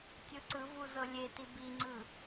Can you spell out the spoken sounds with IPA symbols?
tʲ ɯ ǀ ɯ v u z ɤ lʲ e t i b i ŋ͡ǀ ɯ

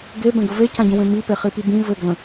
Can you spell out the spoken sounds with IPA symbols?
ɡ e b ɛ̃ ɡ ə v e c ã ɟ ə̃ w ẽ m i p e χ i p i b ĩ v ɘ ɡ l ə̃

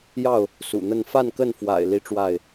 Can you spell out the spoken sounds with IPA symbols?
j ɑ˥˨ ʊ̯ | s ṵ˨˩ n̪ ə˥˨ n f a˥˨ n k ə˥˨ n f w a̰˨˩ ɪ̯ l i˥˨ ʈ͡ʂ w a˥˨ ɪ̯

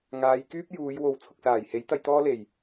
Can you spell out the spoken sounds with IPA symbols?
ŋ aː˨˧ j k yː˥ p̚ j uː˨˧ j w o˨ w t͡sʰ ʊ˨ k̚ s aː˨˩ j h e˨˥ j t̪ ɐ˧ j t̪ ɔː˥ l e˨˩ j

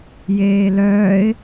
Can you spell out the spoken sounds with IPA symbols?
j eː l œː ɪ̯

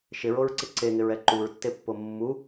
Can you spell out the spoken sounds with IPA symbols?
ʃ ɪ ɹ o ɹ ǀ ɪ ǀ e ŋ ɪ ɹ ɛ ǃ u ɹ tː e pː o mː u

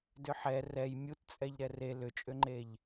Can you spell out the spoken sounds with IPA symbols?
d ʏ ħ ɛ r ɛ j mʲ u t t͡sʼ ɛ ʎ ɾ ɛ r e l ʏ t͡ʃʼ ʏ ŋ͡ǃ e ʎ

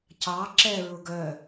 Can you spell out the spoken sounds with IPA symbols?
c ɑ ǁ ɛ ɹ ʊ ɡ œ

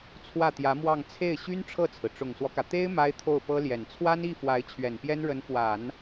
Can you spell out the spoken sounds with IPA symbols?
t͡sʰ w ä˥˩ t̪ j ä˧˥ m w ɑ˥˧ ŋ t͡sʰ e˥˩ ɪ̯ ɕ y˥ n ʈ͡ʂʰ ɤ˥˩ t͡sʰ ɹ̩˩ ʈ͡ʂ ʊ˨˩ ŋ s w ɔ˦ k ä˩ t̪ e˥ ɪ̯ m a˥ ɪ̯ t̪ʰ o˥˩ ʊ̯ p ɤ˥ l j ɛ˨˩ n t͡sʰ w a˥ n i˥˩ f w a˧˥ ɪ̯ t͡ɕʰ ɥ ɛ˨˩ n p j ɛ˥ n ɻ ə˧˥ n f w a˨˩˦ n

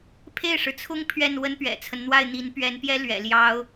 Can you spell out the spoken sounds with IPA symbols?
pʰ e˥˩ ɪ̯ ʂ ɻ̩˩ t͡sʰ ʊ˥ ŋ pʰ ɥ ɛ˥˩ n w ə˥ n p ɥ ɛ̰˨˩ t͡sʰ ə˦ n n̪ w a˥˩ ɪ̯ n̪ i˧˥ n p ɥ ɛ˧˥ n p j ɛ˥ l ɥ ɛ̰˨˩ l j ɑ˥ ʊ̯

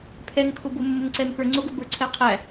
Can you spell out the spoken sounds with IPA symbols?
pʰ ɛ ŋ kʰ ʊ b ʊ mː ʊ ŋ ǀ ɛ m k ə˞ ŋ͡ǀ ʊ ɡ ʊ b ə˞ ǀʰ ɛ qʰ æ

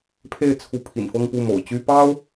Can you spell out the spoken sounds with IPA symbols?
pʰ e˥˩ ɪ̯ t͡sʰ u˧˥ pʰ ḭ˨˩ n f ɤ˥˧ ŋ p u˥˩ m o̰˨˩ ʊ̯ t͡ɕ y˥ p ɑ˥ ʊ̯

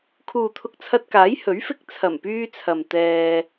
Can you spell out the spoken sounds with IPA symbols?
kʰ uː˨ t̪ʰ ʊ˧ k̚ t͡sʰ ɐ˧ t̚ k aː˨˥ j h ɵ˨˥ ɥ f ɪ˧ k̚ t͡sʰ ɐ˨˩ m p yː˧ t͡sʰ ɐ˨ m t̪ ɛː˧

